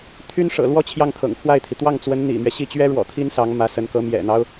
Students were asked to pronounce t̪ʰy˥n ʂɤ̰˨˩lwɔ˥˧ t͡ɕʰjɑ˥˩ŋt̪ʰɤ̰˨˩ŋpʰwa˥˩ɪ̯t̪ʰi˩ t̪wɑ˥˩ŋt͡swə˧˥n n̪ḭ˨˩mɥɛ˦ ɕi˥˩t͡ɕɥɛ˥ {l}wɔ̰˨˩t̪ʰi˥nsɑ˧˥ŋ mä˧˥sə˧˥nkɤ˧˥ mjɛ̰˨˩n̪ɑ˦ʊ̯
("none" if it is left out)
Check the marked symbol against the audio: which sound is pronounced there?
ɻ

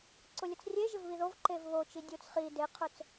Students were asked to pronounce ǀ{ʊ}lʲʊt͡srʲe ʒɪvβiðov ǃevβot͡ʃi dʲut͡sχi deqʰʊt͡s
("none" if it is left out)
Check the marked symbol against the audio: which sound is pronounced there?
ʊ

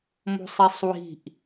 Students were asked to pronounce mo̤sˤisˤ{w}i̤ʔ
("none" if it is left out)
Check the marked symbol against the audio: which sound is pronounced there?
w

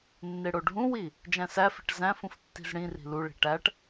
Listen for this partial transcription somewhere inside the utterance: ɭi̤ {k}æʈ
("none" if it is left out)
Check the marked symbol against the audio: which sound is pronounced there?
ʈ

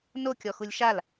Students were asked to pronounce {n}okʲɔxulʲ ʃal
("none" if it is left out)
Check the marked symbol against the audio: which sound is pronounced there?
n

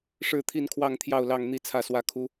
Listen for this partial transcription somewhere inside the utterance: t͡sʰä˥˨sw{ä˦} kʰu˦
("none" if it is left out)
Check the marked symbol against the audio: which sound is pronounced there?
ä˦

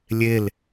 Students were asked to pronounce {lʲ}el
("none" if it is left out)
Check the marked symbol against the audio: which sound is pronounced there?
lʲ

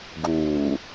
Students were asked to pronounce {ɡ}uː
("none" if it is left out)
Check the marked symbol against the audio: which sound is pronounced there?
ɡ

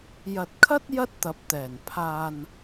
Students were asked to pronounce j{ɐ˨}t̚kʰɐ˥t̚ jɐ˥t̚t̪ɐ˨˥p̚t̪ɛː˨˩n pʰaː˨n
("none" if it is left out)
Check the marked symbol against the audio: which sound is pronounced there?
ɐ˨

